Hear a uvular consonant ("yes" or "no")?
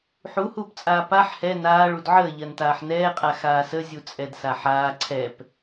yes